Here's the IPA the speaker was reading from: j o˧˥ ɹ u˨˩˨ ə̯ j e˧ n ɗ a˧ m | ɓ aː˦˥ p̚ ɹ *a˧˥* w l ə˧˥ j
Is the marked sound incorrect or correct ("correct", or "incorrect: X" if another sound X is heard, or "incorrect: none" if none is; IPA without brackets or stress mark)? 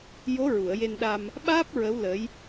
incorrect: ə˧˥